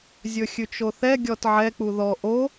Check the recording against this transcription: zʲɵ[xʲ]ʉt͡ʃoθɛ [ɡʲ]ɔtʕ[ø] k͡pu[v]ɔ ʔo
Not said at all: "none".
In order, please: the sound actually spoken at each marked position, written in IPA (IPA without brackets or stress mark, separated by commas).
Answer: xʲ, ɡʲ, ɛ, ð